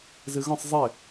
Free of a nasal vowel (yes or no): no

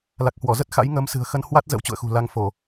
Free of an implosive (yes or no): yes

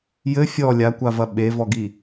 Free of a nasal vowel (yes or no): yes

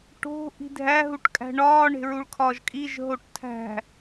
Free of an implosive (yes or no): yes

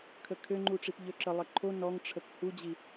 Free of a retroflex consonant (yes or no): no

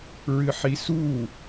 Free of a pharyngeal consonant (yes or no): no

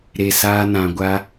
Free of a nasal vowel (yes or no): no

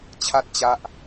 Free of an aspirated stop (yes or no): no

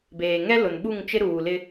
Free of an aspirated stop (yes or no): yes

